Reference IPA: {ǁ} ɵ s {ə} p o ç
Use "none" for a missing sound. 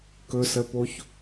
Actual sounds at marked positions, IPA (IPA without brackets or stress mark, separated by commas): k, ə